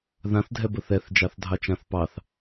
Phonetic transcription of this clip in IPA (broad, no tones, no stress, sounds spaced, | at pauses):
ð ã θ dʱ ɛ b ə θ ɛ θ d͡ʒ ɑ θ dʱ ɑ t͡ʃ ã θ p ɑ θ